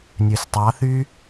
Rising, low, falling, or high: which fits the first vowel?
low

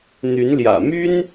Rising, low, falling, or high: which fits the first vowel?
rising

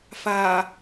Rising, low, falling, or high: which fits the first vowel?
low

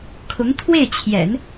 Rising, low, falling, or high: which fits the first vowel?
rising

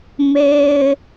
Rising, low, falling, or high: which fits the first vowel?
high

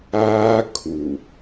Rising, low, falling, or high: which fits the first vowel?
high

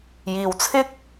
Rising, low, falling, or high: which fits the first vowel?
low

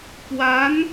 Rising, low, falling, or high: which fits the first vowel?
rising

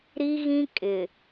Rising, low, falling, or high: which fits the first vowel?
high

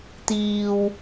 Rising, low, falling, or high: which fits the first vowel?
low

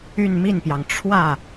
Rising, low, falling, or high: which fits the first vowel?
falling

